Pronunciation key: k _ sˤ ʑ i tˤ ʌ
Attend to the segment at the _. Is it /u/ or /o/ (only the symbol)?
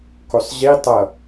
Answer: o